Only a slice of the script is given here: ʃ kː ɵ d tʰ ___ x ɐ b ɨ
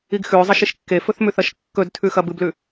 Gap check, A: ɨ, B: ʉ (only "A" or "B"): B